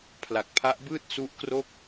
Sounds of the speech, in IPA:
pʰ l a˨˩ k̚ pʰ a˦˥ ʔ b ɯː˥˩ t̚ s u˦˥ ʔ k r o˥˩ k̚

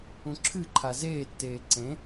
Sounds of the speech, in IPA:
ũ ǁʰ ɨ ǃʰ a z eː tː eː ǀ ẽ

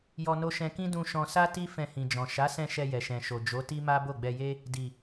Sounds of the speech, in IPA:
j ɔ˧ n o˧ ʃ ɛ̃˧ k ĩ˦ d ũ˧ ʃ ɔ̃˧ s a˦ t i˦ f ɛ̃˧ h ĩ˨ d͡ʒ ɔ̃˨ ʃ a˨˦ s ɛ̃˧ ʃ ɛ˧ j ɛ˨ ʃ ɛ̃˨ ʃ o˨ d͡ʒ o˨˦ t i˦ m a˦ b o˦˨ ɡ͡b ɛ˧ j e˦ | d i˨

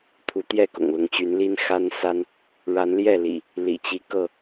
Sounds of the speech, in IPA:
t̪ʰ u˨˦ t̪ j ɛ˥˨ k ʊ̰˨˩ ŋ l ʊ˨˦ ŋ t͡ɕ y˨˦ n l i˦ n x a˦ n s a˦ n | ɻ a˨˦ n l j ɛ˥˨ l ḭ˨˩ | l ḭ˨˩ t͡ɕ i˦ k ɤ˥˨

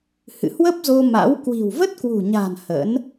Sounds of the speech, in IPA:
h ɨ̰˧˨ h w ə˦˥ p̚ z o˧ m a̰˧˥ w k w i̤˨˩ w v ə˦˥ t̚ k w ṳ˨˩ ɲ a̤˨˩ n h ə̰˧˥ n

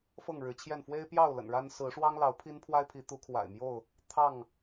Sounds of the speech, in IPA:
f ɤ˥˨ ŋ ɻ ɻ̩˨˦ t͡ɕʰ j ɛ˥˨ n f w e˦ ɪ̯ p j ɑ˥˨ ʊ̯ l ə̰˨˩ n ɻ a˦ n s ɹ̩˨˦ ʂ w ɑ˦ ŋ l ɑ˨˦ ʊ̯ pʰ i˦ n pʰ w a˦ ɪ̯ pʰ i˨˦ t̪ u˨˦ kʰ w a̰˨˩ ɪ̯ m j o˥˨ ʊ̯ | t̪ʰ ɑ˥˨ ŋ

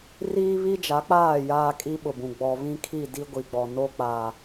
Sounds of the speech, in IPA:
r iː˦ β i˦ d͡ʒ a˨˦ k͡p aː˦˨ j aː˦ kʼ i˦ ɓ ʊ˨ b ũ˨ ɡ͡b ɔ˨ β ĩ˦ kʰ i˦˨ d i˦ ɡʷ i˨ ɡ͡b ɔ˨ n o˦ k͡p a˨

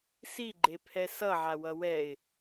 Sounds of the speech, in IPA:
s i ɡ͡ǃ e pʰ ɛ s ʌ ʕ a w ʌ w ɛ ɪ̯

